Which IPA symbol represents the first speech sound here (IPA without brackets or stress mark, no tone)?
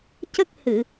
c